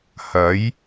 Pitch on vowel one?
rising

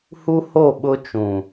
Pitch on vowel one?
high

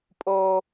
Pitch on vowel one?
high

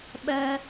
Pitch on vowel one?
high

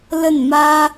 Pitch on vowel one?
falling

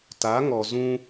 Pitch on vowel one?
rising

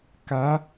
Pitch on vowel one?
rising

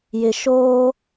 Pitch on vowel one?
low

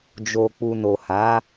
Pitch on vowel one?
low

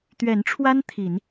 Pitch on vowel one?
rising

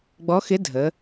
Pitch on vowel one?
rising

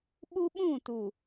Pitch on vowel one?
high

